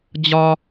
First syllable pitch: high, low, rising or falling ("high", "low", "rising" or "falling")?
high